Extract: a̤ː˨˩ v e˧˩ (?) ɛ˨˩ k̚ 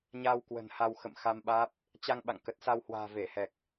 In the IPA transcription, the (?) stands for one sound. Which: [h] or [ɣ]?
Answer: h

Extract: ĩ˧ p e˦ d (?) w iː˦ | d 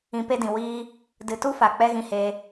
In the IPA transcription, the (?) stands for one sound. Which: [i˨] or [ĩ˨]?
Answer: ĩ˨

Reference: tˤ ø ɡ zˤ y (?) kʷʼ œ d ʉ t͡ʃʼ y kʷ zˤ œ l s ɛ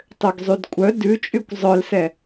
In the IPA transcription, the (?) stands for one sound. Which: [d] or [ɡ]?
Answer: d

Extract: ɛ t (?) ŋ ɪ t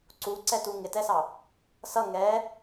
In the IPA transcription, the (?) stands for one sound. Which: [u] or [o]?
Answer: u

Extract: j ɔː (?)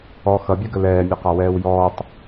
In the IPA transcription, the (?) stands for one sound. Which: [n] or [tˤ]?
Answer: tˤ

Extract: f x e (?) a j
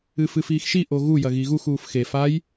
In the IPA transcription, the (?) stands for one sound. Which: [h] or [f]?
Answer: f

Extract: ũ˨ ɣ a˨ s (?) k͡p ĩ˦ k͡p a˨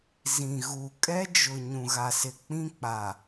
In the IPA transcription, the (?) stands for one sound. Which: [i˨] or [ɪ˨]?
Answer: ɪ˨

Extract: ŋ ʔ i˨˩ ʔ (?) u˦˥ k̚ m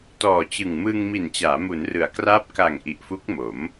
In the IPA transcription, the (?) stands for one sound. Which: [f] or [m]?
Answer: f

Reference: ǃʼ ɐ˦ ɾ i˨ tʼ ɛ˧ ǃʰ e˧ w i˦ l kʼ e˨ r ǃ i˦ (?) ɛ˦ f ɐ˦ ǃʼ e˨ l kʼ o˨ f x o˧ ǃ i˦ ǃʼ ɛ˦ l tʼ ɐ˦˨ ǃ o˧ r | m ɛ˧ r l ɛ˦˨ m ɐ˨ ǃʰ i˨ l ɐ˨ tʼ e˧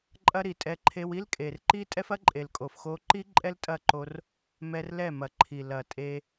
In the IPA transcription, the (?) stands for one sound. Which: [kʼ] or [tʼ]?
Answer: tʼ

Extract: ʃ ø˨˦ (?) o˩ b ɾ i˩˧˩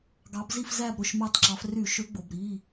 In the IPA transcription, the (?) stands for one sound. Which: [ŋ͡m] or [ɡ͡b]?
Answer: ɡ͡b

